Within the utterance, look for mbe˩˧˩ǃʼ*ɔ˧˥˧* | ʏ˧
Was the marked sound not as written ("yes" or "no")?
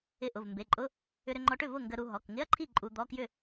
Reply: yes